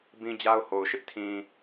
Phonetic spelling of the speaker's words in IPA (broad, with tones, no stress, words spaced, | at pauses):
bĩ˦d͡ʑa˦ʊ̯ho˨ʊ̯ ʃɪ˦ʔtʰĩ˨